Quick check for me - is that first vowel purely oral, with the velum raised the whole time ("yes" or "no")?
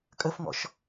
yes